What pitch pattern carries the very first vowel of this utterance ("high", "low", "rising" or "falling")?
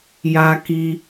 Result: low